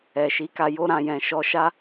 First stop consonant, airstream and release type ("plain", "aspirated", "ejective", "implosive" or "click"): plain